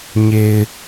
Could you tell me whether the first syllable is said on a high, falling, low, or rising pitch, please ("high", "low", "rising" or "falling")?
low